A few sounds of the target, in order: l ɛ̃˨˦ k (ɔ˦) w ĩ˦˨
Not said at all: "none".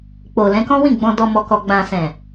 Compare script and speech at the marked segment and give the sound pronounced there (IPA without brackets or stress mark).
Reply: ɔ̃˦